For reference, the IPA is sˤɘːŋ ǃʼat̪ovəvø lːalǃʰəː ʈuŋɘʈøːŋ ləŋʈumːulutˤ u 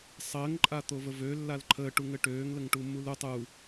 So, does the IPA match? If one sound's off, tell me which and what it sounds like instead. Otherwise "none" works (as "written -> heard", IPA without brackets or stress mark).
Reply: none